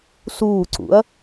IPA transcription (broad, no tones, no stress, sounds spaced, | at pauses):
s uː ǀ ṵ ɐ̯